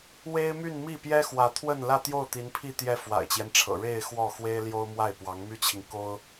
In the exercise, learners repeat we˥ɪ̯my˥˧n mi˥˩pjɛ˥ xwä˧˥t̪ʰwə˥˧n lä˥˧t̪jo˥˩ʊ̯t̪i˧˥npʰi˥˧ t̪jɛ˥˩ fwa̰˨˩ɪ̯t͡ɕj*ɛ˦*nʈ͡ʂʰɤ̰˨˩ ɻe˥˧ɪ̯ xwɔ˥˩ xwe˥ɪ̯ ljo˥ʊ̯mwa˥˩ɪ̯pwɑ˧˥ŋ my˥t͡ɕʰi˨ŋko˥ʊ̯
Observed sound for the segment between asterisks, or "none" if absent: ɛ˦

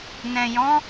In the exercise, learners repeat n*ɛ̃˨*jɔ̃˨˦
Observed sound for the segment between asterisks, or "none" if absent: ɛ̃˨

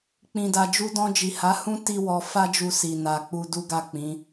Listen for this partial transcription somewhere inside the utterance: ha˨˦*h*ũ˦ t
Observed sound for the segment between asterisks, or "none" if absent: h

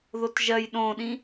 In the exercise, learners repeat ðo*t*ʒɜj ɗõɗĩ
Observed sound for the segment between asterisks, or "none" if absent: t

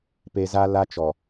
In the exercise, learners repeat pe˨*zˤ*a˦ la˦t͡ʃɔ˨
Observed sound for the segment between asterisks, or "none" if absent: z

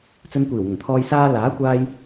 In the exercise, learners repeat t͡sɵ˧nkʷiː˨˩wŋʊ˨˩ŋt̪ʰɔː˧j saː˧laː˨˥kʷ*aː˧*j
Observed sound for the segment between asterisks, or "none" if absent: aː˧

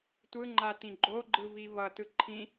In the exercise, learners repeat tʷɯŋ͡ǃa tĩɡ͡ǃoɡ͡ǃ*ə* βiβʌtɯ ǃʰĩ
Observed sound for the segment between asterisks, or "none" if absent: ɯ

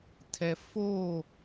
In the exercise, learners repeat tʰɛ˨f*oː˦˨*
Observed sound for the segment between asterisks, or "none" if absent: oː˦˨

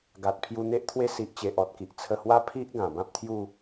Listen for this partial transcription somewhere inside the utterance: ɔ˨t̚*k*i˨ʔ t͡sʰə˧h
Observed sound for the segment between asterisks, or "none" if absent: k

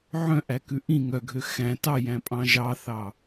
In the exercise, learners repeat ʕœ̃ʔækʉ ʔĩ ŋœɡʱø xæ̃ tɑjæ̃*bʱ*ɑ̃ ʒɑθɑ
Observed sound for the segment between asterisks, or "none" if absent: pʼ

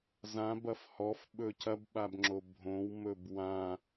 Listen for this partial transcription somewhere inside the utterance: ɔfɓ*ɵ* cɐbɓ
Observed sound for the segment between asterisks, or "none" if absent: ɵ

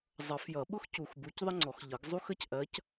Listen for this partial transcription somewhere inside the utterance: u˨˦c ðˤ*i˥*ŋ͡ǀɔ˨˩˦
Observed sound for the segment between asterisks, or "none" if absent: ɪ˥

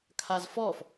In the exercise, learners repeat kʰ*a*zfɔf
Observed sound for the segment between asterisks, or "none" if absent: a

